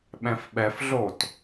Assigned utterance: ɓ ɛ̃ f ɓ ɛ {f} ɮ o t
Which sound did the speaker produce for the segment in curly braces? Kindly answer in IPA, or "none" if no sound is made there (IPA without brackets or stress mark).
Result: f